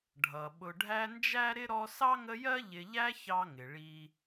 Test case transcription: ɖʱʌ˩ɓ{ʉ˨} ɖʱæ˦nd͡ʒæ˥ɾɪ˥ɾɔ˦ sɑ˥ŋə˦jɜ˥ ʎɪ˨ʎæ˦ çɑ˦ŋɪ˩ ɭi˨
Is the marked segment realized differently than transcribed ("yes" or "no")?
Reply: yes